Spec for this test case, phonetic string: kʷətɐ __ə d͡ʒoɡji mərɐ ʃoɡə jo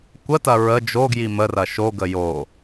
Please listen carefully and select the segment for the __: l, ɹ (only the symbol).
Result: ɹ